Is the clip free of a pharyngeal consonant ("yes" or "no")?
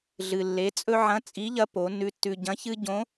no